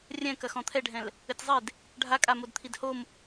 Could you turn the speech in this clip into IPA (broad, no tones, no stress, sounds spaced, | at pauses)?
rʲ ɛ̃ k ɐ x ɔ̃ t̪ʰ ɛ ɖʱ ɛ̃ l | ɘ tʲ zˤ e d | ɖʱ a kʼ a m o d t̪ʰ i d h o m